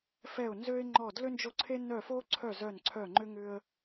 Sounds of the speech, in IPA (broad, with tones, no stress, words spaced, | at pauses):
fɛ˥˩ʊ̯nzø˥ɪ̯ŋ͡ǃɔ˥˩ dlʏ˥nd͡ʒo˥˩ǀʰe˥ nœ˥˩fo˥ǀʰœ˥˩ zœ˥˩nǀʰœ˥˩ŋ͡ǃʏ˥ ŋʏ˥ə̯